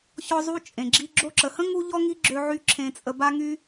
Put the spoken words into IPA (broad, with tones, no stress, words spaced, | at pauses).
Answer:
çɔ˦zˤu˦ t͡ʃʼẽ˨ɡ͡ǁi˧ ɡ͡ǁo˧ǁə˨hə̃˦ ŋu˦ʎɔ˦ ŋi˦ɡ͡ǁø˧ ʕy˦ ǁʰẽ˧t͡sʼə˧ ba˦ŋy˦